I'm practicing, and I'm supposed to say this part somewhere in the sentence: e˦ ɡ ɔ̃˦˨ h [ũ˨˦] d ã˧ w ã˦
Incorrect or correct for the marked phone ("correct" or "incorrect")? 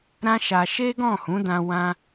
correct